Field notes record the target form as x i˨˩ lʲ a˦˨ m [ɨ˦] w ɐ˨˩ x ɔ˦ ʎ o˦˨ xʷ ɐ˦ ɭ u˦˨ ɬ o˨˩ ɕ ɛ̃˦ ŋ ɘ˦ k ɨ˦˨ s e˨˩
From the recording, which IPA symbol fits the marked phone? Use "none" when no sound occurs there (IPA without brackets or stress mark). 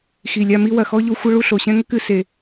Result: i˦